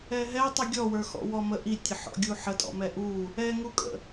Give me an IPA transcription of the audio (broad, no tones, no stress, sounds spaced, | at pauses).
ɛ ɦ ɛ tˤ u ɡʲ ɔ w ə˞ x ɔ̰ w ɔ m ə ʔ i tʲ ə ħ ɔ̰ ɡʲ u ħ ə tʼ ɔ̰ m ɛ ʔ u | ɛ ŋ u kʼ ə̰